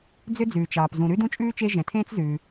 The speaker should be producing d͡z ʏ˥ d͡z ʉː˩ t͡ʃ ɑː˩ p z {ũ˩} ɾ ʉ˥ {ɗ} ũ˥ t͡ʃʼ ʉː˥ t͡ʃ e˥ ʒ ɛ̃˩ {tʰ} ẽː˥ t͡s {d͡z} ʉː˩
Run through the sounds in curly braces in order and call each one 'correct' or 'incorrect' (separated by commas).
correct, incorrect, correct, incorrect